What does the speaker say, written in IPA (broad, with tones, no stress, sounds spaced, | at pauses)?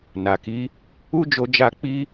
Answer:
n a˨ k i˨˦ | u˦ d͡ʒ o˧ d͡ʒ a˧ k͡p i˧